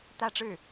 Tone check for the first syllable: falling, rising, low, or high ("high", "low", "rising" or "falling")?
falling